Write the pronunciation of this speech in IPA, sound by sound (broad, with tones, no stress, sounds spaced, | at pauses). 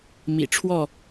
m ḭ˨˩ ʈ͡ʂʰ w ɔ˥˨